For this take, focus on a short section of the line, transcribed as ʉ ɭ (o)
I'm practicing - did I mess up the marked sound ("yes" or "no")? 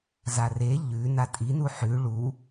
yes